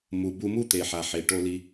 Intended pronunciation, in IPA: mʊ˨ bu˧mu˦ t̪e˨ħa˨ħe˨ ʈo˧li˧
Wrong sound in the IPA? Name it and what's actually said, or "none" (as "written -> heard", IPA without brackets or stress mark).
ʊ˨ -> u˨